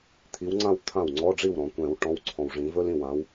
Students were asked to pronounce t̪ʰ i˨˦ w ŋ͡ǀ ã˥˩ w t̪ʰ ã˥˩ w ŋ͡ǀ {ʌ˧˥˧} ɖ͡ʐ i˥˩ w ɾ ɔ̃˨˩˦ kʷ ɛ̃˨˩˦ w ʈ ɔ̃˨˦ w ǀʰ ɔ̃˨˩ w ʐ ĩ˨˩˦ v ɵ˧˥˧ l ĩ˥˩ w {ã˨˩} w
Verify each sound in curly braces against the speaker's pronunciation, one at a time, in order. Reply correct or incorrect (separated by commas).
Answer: incorrect, incorrect